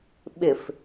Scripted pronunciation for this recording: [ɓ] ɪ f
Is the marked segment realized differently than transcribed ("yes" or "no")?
no